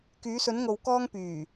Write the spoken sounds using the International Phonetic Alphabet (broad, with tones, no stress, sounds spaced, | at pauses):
k yː˨˧ s ɵ˨˧ n ŋ o˨ w k ɔː˧ ŋ p yː˨˩